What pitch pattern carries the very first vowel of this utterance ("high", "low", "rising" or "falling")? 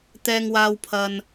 low